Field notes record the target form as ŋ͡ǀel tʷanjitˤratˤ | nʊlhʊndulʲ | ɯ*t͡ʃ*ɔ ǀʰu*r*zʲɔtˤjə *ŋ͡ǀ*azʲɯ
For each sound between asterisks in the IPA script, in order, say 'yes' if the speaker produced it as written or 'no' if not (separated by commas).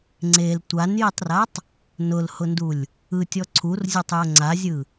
no, yes, yes